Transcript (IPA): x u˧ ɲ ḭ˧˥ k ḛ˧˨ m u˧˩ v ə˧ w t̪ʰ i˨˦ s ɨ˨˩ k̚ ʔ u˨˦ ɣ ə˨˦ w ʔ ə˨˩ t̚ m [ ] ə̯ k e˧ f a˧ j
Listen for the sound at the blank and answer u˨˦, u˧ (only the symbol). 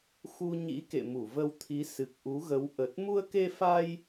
u˧